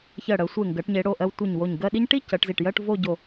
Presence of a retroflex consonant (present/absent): present